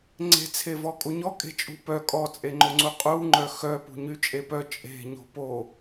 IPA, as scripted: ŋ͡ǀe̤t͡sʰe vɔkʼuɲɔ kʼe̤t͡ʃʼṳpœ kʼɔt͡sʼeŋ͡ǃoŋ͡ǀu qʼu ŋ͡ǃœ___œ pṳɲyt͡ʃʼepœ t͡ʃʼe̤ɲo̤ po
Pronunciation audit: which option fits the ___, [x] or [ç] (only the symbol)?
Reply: x